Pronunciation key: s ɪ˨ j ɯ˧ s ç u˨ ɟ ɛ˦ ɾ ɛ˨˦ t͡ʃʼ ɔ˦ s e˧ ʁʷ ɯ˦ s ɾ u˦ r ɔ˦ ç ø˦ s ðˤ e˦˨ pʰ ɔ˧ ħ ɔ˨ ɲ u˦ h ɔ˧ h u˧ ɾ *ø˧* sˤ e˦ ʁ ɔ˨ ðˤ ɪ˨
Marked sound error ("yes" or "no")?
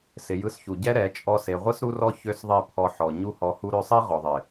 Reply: no